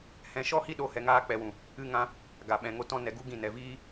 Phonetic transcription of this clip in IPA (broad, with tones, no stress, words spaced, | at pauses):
hɛ̃˧ʃɔ˦hi˦ɗo˧ hɛ˧ŋaː˦k͡pɛ˧wũ˨ | ɨ˦ŋã˦ | ɡa˨ɓɛ̃˨ŋo˦ tɔ̃˦nɛ˧ɡu˦ ɡĩ˦˨nɛ˨ viː˦